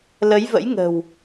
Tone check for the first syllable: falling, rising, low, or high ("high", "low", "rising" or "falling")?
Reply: rising